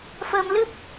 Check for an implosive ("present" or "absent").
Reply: absent